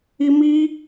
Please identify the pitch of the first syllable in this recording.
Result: high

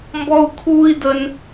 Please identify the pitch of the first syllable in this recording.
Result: high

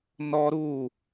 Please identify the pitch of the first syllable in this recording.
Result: high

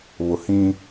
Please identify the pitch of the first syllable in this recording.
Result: low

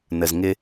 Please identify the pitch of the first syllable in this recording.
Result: low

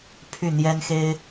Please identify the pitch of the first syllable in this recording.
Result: falling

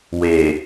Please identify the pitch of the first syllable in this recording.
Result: low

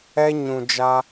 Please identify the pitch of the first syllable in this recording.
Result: high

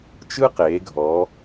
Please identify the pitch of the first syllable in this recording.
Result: high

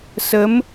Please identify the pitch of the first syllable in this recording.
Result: rising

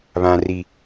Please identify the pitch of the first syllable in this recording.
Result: low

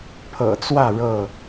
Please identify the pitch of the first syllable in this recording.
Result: low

